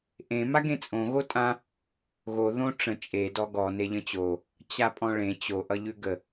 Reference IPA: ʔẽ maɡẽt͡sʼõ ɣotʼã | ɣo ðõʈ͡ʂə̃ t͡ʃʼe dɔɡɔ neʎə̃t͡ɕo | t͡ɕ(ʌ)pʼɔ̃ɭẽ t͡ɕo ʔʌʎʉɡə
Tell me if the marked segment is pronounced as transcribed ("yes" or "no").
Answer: no